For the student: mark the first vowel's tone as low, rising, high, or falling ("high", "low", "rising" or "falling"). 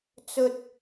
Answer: high